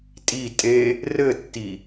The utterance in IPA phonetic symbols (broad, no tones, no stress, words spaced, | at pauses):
tʼi tʼe | rɘtːi